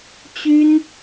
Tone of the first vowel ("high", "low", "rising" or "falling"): high